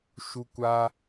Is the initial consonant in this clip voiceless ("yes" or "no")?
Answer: yes